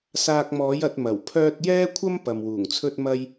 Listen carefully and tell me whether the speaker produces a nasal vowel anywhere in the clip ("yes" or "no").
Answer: no